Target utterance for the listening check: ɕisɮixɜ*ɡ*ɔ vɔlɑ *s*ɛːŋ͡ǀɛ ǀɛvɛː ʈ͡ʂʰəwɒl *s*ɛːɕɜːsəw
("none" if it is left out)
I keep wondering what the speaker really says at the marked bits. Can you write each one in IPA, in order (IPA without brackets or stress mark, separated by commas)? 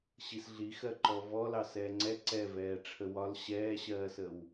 ǃ, s, ɕ